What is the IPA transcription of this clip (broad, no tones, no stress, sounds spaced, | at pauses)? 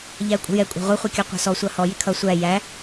ʎ æ ə̯ kʷʼ ə̤ j ɛ kʷʼ ɑ̤ ʁʷ ʌ χʷ i kʲ ɔ qʷ ɑ̤ s ɔ sʷ ɑ h ɔ j ɪ kʰ ʌ sʷ æ j æ